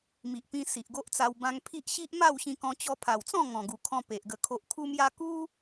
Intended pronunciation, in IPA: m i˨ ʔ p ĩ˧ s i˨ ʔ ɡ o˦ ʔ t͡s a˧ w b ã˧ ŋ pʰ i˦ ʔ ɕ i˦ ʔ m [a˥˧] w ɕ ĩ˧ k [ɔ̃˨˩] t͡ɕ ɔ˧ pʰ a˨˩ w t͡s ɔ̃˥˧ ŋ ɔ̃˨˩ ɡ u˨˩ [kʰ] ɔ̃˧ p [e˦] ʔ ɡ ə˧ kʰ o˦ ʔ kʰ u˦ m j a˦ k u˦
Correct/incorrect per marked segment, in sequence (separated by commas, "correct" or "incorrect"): correct, incorrect, correct, incorrect